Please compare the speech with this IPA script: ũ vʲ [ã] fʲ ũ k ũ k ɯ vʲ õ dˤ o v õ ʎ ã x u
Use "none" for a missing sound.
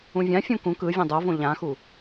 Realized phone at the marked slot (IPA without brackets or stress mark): ã